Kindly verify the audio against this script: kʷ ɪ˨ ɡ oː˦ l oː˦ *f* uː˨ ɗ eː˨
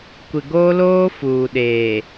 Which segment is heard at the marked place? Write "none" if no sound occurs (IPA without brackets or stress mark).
f